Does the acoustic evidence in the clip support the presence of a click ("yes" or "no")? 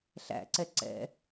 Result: yes